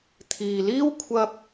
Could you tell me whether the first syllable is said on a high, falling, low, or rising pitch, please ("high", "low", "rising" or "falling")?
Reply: low